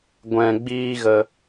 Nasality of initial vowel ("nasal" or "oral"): nasal